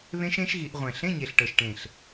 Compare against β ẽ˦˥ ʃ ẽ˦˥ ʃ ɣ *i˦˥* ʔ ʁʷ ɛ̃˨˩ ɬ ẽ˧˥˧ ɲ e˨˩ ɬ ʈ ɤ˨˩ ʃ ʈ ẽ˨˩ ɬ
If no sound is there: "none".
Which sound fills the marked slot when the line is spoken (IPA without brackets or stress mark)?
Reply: i˧˩˧